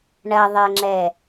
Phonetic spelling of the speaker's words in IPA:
ɳ ɐ ðˤ e ŋ͡ǁ ɛ

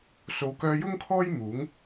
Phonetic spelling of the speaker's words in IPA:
s o˨˧ w k œː˧ j ʊ˥ ŋ kʰ ɔː˥ j m uː˨˥ ŋ

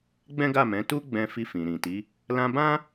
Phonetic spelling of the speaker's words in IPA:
ɡ͡b ɛ̃˦ ɡ a˦˨ m ɛ̃˨˦ t u˦ ɡ͡b ɛ̃˧ f i˧ f ĩ˨ ɾ ĩ˨ t i˨˦ | l ã˧ b ã˦

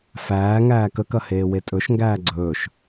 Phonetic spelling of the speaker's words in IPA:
f æː ŋ æː k ə k ɐ h eː w e tʼ ɵ ʃ ŋ ɡ æː ɡ͡ǀ ɵː ʃ

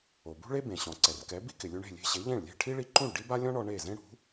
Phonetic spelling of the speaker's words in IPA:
o˩ b ṳ˥ ɭ e˥ b ẽ˩ ɕ ɔ̃˩ ǀ ɛ˩ r k ɛ˩˥ b i˥ k ɪ˩ lʲ u˧ ɳ e̤˥˩ lʲ e̤˧ ɕ e˩˥ ʎ ẽ˥˩ ɭ lʲ e̤˥˩ ʈʰ i˥ ɭ i˧ ǃ ũ˥˩ ɭ ɖ i˥ b a˥ lʲ ɔ̃˥ ɳ ɔ˧ ɳ e˥˩ z ẽ˥ ɽ ṳ˩˥

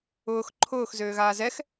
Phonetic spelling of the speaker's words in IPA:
ʊː x ǃʰ ʊː x z øː ɣ aː z ɛ x

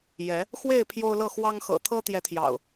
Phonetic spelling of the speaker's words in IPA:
j ɛ˨˦ | x w e˥˨ ɪ̯ pʰ j o˦ ʊ̯ l ɤ˥˨ x w ɑ˦ ŋ x ɤ̰˨˩ t̪ʰ ɤ˦ t̪ j ɛ˨˦ t̪ʰ j ɑ̰˨˩ ʊ̯

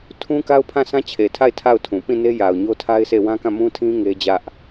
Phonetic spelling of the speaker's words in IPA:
tʰ ũ˦ k a˦ ʊ̯ pʰ ã˦˨ s ã˦ t͡ɕʰ e˨ tʰ a˦˨ ɪ̯ tʰ a˦˨ ʊ̯ tʰ ũ˨ p ĩ˦˨ n e˦ j a˨ ʊ̯ ɲ o˦ tʰ a˦ ɪ̯ s e˦˨ w ã˦ k ã˦˨ m ũ˦ tʰ ĩ˦ ŋ e˦ d͡ʑ ä˦ ʔ

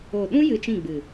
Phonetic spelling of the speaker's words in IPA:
o˨ ɗ ũ˦ j ɨ˧ t͡ʃ ĩ˦˨ ɡ͡b ɨ˨

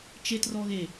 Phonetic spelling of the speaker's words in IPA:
t͡ʃ e t r ɔ ɣ e

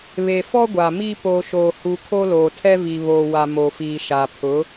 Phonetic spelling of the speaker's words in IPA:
β e˨ f ɔ˦ ɡʷ a˨ m i˦ p o˨ ʃ oː˨ h u˨ kʰ o˦ l oː˨ tʰ ɛ˦ v i˨ β oː˨ w a˨ m o˨ f iː˨ ʃ a˨ pʰ ʊ˨˦

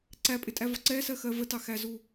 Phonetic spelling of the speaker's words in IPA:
ǀ æ pʼ ɪ tʼ æ v ɒ ǀ ɛ s ɜ x ɜ v ə t ɑ x æ z u

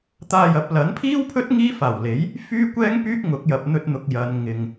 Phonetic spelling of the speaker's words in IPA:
t̪ aː˧ j ɐ˨˥ p̚ l ɐ˨˥ n pʰ iː˥ w pʰ ɵ˥ t̚ ŋ iː˥ f aː˨˩ w l e˨˥ j | f yː˥ kʷ ɛː˥ ŋ p yː˥ k̚ ŋ ʊ˨˥ k̚ j ɐ˨ p̚ n̪ ɵ˧ t̚ n̪ ʊ˨ k̚ j ɐ˨˧ n ŋ ɪ˨ ŋ

